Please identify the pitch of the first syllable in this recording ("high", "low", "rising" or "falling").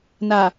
low